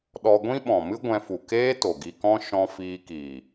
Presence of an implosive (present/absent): present